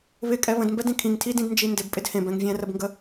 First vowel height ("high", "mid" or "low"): high